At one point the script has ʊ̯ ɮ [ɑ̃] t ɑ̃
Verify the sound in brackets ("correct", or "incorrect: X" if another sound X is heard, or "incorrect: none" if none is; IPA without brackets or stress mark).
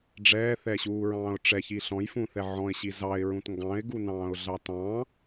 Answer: incorrect: ɑ